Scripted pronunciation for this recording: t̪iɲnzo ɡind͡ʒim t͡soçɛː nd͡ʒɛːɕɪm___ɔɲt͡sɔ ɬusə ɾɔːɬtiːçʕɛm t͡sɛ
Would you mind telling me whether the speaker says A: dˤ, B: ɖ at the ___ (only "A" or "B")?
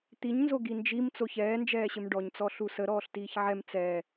B